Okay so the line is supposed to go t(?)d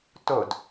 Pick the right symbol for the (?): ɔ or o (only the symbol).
o